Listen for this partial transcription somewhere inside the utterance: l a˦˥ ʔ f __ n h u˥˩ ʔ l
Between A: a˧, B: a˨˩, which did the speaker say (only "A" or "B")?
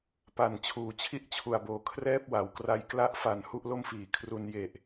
B